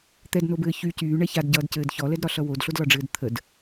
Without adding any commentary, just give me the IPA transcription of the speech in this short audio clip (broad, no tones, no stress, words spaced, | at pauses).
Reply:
t̪ɛdnobɘː çy cyːɳɛ çadɟʌːdcɘːd çɔlɛdɾɒɬʌ wodɬodlɒɖ͡ʐɘːd t̪ʰəd